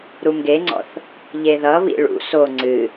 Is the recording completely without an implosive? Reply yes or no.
yes